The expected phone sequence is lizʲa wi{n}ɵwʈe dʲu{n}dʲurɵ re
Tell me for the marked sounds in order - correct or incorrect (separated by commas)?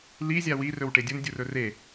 incorrect, correct